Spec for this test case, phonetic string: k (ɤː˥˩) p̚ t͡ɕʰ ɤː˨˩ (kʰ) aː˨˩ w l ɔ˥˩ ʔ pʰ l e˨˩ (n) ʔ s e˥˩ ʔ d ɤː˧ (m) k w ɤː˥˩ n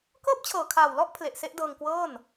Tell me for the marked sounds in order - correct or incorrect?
correct, correct, incorrect, incorrect

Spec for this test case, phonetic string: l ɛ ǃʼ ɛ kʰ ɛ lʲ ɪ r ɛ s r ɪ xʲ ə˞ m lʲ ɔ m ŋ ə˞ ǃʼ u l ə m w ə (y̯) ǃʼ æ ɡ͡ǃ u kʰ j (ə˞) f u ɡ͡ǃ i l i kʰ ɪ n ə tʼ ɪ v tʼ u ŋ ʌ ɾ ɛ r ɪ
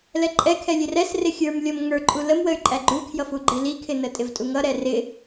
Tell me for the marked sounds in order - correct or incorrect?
correct, incorrect

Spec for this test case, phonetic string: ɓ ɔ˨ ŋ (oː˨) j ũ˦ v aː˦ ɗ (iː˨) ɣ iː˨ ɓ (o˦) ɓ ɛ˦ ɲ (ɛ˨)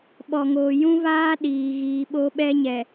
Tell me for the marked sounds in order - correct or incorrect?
correct, correct, correct, correct

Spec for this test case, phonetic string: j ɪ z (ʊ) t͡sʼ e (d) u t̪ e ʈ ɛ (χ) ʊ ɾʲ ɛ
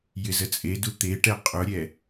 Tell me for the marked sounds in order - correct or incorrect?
incorrect, correct, incorrect

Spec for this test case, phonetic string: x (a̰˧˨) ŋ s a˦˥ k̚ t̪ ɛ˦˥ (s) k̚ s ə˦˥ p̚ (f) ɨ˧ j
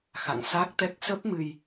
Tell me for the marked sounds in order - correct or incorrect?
correct, incorrect, incorrect

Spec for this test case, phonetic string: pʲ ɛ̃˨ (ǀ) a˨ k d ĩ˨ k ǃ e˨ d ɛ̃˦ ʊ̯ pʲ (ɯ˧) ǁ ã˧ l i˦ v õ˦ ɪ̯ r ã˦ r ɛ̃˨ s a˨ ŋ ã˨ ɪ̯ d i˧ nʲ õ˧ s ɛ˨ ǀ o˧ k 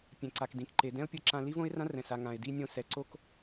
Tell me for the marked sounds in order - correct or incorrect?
correct, incorrect

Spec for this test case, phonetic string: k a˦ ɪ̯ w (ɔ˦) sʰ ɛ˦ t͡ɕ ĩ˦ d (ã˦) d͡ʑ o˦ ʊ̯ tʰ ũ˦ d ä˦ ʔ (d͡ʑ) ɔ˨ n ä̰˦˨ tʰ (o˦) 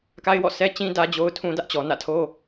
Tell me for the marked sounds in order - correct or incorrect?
incorrect, incorrect, incorrect, correct

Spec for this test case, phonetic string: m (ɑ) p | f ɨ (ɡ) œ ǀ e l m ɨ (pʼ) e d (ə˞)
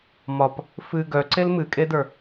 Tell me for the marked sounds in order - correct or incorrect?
incorrect, correct, incorrect, correct

